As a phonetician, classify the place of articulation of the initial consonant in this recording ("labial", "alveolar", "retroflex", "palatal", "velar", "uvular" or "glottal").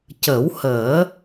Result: palatal